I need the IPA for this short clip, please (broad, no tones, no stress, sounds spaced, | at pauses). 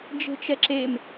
d͡ʒ e̤ t͡ʃ ɛ ǁ e m